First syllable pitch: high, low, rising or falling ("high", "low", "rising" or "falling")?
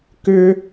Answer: high